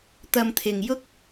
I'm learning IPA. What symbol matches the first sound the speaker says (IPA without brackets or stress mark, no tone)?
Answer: t̪